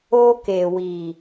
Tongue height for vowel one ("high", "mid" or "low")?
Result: mid